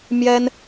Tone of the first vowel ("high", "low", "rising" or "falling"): high